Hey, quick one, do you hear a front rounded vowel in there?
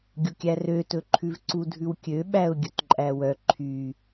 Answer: yes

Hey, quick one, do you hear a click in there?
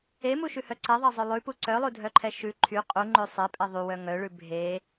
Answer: yes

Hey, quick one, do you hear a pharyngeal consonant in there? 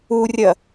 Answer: no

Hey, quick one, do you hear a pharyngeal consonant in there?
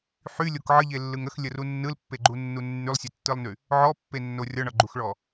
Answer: yes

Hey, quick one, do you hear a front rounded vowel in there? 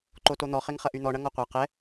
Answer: yes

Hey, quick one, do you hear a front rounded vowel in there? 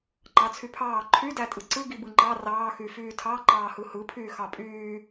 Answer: yes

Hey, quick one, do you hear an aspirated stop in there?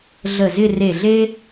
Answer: no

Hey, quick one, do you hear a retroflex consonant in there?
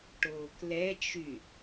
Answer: yes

